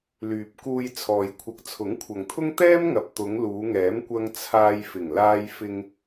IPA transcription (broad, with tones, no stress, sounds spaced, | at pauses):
l yː˨ p̚ k uː˧ j t͡sʰ ɔː˨ j kʷʰ ɐ˨ k̚ t͡sʰ ʊ˨˥ ŋ kʷʰ ɐ˨ ŋ t̪ʰ ʊ˥ ŋ t̪ ɛː˥ m ŋ ɐ˨ p̚ t̪ ʊ˨˧ ŋ l uː˨˧ ŋ ɛː˨˥ m kʷ ɐ˧ ŋ t͡sʰ aː˧ j f ɪ˨˩ ŋ l aː˧ j f ɪ˧ ŋ